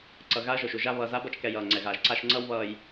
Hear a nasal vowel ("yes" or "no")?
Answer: no